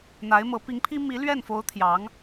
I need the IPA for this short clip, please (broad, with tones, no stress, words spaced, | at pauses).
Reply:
n̪a˧˥ɪ̯mɤ˧˥ pi˧˥ŋpʰi˥ mi˧˥ lɥɛ˥˩nfo˧˥ʊ̯ t̪ʰjɑ˧˥ŋ